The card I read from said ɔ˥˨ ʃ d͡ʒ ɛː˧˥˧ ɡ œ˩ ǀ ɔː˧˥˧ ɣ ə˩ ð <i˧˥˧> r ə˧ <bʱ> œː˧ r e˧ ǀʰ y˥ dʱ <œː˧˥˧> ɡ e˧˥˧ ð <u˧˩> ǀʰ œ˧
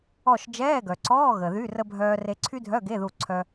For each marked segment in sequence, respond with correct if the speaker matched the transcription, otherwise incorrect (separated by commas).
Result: incorrect, correct, incorrect, correct